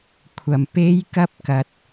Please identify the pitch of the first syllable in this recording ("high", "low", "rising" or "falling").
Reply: low